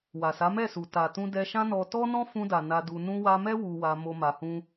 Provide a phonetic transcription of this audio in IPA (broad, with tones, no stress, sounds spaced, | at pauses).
w a˨ s a˨˦ m ɛ˦˨ s u˨ t a˨ t ũ˧ d ɛ˧ ʃ ã˦ n ɔ˧ t ɔ˦ n ɔ̃˦ f ũ˧ d a˨ n a˧ d u˧ n ũ˧ w a˧ m ɛ˦ w u˧ w a˧ m o˦ m a˧ h ũ˦